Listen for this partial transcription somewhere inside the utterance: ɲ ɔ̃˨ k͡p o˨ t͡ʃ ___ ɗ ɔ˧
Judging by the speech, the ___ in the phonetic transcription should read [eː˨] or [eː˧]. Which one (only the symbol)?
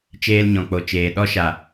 eː˨